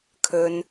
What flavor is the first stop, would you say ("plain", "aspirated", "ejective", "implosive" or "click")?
aspirated